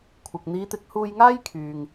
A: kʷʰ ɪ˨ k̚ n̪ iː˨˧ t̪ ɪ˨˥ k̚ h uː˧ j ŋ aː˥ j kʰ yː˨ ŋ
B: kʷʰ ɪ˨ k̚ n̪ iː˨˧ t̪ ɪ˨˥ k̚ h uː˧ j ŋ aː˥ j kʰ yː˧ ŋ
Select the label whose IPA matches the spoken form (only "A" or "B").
A